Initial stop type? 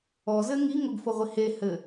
plain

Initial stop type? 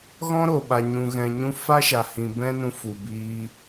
implosive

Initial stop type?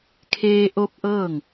aspirated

